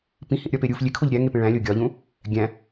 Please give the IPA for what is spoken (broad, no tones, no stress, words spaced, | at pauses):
pĩhĩʔɾʲɒpe ɾʲuf lʲekʰoʎ ɾʲæŋepẽ ɭæ̃lʲo ɡʲɒʎũ | ɡʲæ̃